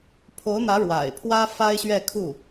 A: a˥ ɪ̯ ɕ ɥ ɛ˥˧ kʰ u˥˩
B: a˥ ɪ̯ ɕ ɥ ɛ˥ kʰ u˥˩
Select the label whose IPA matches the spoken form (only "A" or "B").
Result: A